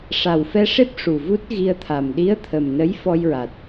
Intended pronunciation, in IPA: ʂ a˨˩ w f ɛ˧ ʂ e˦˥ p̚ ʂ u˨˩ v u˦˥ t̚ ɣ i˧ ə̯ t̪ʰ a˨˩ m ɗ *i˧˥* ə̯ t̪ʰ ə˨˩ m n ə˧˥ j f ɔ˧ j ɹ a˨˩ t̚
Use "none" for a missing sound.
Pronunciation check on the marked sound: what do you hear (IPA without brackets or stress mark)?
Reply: i˧˥